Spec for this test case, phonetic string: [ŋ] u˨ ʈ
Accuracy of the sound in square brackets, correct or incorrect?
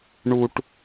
incorrect